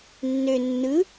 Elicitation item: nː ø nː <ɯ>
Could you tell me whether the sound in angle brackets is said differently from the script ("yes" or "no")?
no